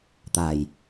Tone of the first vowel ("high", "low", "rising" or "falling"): low